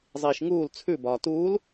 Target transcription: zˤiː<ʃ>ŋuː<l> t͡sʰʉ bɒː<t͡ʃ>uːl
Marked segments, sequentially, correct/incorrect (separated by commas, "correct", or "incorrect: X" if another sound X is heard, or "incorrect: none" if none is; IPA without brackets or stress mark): correct, correct, incorrect: t